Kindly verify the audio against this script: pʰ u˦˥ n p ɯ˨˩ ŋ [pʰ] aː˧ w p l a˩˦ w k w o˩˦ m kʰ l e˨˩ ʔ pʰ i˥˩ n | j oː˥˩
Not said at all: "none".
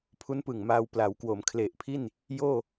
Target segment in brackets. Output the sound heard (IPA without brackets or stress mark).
m